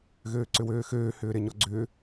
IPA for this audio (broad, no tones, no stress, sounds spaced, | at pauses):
ɣ øː ǀ ʏ w øː x øː h ʏː ɾ e ɲ ɔ ɡ͡ǀ ʏː